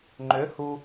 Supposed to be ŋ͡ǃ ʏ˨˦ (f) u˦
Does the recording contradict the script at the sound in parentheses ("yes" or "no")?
yes